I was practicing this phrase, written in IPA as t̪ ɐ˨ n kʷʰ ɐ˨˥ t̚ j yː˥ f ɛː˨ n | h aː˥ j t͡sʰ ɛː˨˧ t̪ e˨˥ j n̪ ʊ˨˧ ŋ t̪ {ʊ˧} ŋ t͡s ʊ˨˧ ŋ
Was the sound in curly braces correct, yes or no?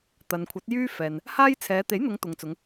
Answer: no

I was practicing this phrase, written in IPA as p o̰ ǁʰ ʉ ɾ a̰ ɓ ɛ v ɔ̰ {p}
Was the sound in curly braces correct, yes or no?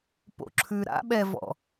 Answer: no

